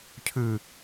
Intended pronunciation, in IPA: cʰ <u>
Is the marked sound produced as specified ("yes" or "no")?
no